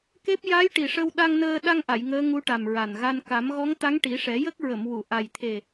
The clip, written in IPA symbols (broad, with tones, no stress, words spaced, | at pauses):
ke˦˥p̚ ja˧˥jʈi˨˩ ʂə˧wɗa˧ŋnəː˧ ɗa˧ŋʔa˨˩˨j ŋəː˧˥ŋu˧˥ʈa˨˩m ɹa˨˩nɣa˧n ka˨˩˦m ɣɔ˧˥ŋt̪a˧˥ŋʈi˨˩˦ʂɛ˨˩˦ jə˦˥k̚ ɹə˨˩˨mwu˨˩˨ ʔa˨˩jt̪ʰe˨˩